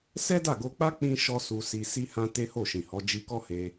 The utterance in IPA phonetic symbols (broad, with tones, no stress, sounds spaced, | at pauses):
s ɛ˦ d a˦˨ ɡ o˧ k͡p a˦ k͡p ĩ˦ ʃ ɔ˦ s u˧ s i˧ s i˦ h ã˦ t e˦ h o˦˨ ʃ ĩ˨ h ɔ˨˦ d͡ʒ i˧ k ɔ˦ h e˧